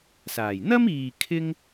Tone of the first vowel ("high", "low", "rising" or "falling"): low